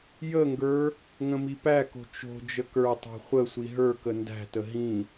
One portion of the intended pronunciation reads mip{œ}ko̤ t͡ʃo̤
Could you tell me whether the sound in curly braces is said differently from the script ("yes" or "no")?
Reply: yes